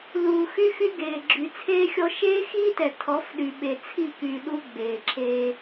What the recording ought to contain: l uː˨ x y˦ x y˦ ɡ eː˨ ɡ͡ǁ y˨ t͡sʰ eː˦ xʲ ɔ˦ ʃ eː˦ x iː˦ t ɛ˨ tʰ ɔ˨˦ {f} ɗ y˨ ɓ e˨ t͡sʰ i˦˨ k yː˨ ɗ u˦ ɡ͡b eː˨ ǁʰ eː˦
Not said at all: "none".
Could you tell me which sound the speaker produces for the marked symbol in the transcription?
f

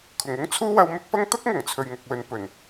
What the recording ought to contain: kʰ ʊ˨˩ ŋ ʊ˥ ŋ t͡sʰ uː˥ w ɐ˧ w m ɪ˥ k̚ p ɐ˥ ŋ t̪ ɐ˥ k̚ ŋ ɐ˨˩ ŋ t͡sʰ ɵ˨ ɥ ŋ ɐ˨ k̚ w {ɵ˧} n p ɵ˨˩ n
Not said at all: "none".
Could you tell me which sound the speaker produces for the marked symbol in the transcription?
ɵ˨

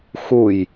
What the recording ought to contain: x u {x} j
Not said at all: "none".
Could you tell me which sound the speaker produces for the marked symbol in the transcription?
none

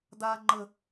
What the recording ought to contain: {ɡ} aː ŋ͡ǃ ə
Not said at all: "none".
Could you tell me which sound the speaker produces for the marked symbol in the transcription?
d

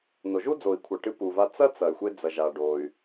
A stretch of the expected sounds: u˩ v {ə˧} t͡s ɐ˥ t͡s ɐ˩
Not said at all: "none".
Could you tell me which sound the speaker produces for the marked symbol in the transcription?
a˧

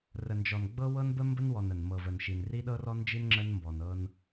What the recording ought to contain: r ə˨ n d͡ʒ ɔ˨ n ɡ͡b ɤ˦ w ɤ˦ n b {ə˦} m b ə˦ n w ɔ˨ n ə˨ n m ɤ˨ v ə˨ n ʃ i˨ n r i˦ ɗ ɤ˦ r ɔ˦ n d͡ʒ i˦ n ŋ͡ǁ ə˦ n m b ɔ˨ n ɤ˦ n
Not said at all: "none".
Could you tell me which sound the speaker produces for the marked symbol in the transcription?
ə˦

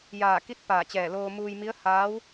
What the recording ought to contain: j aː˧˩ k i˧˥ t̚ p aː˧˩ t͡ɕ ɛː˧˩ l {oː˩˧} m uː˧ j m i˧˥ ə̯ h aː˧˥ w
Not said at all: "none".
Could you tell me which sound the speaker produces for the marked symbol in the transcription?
oː˧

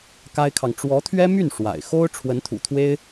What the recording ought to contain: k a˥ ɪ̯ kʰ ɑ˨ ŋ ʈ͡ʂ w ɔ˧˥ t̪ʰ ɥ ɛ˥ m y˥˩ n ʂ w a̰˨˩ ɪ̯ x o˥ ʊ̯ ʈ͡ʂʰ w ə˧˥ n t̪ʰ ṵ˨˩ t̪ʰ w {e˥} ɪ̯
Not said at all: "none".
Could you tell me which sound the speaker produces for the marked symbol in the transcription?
e˥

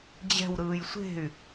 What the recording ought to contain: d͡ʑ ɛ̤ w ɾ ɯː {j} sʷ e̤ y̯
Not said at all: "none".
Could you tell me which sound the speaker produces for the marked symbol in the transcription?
j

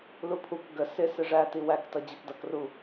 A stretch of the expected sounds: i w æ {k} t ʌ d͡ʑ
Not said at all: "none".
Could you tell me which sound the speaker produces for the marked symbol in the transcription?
k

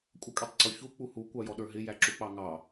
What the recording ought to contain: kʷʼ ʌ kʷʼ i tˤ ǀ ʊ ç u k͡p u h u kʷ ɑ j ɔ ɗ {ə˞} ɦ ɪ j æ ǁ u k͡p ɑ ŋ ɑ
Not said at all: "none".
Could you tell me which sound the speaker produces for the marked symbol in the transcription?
ə˞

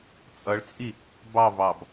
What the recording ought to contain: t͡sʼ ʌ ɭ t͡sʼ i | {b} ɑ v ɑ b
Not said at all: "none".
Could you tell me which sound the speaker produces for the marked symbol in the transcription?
b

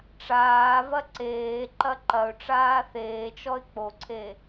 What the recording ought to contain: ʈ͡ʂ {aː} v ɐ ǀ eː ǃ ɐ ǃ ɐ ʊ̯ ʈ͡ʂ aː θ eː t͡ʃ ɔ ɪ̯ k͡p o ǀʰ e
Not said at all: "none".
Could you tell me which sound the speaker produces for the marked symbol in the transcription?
aː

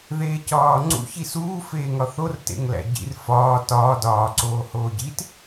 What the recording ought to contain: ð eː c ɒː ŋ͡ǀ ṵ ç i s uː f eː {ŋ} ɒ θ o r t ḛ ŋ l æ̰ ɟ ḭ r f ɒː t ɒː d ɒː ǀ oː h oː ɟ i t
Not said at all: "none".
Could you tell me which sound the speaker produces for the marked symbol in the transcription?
ŋ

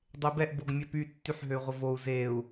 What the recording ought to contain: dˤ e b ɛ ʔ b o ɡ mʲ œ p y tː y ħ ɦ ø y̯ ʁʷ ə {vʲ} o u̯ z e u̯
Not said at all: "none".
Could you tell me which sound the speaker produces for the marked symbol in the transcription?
v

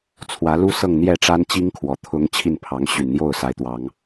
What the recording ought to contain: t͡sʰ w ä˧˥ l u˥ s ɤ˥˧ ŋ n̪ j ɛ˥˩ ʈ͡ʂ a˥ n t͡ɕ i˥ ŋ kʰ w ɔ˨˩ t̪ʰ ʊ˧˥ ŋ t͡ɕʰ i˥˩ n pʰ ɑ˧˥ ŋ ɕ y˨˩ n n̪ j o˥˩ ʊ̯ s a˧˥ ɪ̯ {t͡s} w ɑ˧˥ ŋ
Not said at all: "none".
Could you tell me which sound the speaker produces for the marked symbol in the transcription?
t̪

